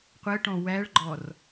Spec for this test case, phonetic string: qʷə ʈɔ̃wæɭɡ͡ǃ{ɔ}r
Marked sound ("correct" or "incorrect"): correct